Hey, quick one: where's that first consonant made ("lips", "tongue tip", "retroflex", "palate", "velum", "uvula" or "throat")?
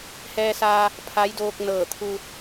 throat